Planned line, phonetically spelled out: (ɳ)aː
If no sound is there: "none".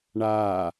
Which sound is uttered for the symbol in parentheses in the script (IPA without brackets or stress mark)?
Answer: ɳ